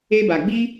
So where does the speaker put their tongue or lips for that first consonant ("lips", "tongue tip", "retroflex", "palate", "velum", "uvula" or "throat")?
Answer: lips